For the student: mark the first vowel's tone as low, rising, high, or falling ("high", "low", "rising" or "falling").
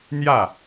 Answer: falling